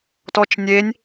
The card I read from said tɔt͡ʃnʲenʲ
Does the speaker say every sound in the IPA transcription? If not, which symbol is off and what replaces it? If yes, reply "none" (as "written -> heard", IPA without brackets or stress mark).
none